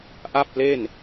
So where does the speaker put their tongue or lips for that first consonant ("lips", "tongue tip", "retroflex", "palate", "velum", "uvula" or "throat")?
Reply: throat